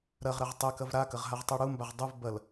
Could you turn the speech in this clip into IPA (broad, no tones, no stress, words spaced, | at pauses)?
ɾɐʁɾɐʁ tˤekɐv ɾakɐʁɦaʁtˤu ɽumbaʁ dˤuv bɐl